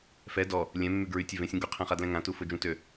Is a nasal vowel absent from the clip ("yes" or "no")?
no